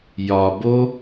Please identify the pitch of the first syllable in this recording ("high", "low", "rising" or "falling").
low